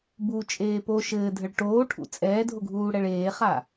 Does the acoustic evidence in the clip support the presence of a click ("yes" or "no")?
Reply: no